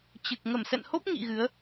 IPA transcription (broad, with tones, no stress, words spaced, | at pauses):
t͡ɕɨ˨˩k̚ ŋə˧˩msɛ̰˧˨nho˦˥p̚ ŋḭ˧˨ ɣɨ˨˦ə̯